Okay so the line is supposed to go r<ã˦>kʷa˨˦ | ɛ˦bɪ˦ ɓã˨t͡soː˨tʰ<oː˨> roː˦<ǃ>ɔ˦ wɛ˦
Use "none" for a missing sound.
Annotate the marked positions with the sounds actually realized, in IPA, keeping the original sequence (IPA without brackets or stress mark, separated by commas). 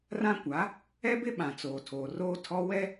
ã˦, oː˨, tʰ